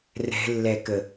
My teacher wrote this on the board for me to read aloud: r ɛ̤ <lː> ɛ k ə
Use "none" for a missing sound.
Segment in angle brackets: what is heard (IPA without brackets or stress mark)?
lː